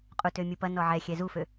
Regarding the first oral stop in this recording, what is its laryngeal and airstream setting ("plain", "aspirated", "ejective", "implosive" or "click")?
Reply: ejective